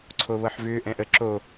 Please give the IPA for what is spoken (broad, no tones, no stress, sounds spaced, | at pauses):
ǀʰ o β ɤ ħ v ʏː ʔ ɛ̃ ʔ ə ǁ o